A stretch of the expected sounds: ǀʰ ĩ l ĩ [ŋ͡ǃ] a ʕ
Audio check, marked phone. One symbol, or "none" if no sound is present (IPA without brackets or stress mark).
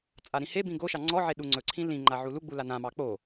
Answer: ŋ͡ǃ